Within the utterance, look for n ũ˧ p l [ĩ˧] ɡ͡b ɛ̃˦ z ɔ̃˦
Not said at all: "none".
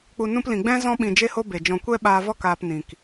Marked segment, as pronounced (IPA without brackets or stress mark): ĩ˨